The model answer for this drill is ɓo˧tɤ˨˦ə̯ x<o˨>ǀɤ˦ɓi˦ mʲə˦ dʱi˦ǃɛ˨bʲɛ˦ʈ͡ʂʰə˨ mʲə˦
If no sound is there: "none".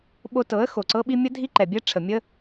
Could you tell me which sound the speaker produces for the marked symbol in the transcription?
o˨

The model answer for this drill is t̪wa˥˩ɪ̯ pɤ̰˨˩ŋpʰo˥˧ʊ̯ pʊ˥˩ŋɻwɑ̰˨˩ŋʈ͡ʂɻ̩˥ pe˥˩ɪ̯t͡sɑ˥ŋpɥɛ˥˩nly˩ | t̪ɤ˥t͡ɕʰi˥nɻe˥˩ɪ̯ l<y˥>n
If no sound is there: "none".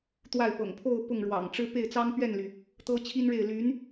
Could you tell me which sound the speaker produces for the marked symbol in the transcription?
y˧˥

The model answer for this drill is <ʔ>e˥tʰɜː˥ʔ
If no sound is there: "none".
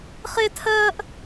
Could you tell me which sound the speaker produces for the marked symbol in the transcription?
χ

